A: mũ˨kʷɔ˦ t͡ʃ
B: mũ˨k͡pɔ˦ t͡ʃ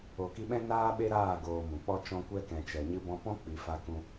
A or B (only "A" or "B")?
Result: B